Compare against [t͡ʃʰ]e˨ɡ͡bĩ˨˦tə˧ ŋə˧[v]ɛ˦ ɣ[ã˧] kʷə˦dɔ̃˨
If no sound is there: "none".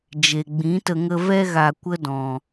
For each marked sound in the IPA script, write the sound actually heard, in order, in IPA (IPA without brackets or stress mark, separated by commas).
d͡ʒ, v, a˧